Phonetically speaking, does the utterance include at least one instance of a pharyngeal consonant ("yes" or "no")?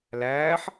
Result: yes